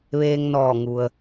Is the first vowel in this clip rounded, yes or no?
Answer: no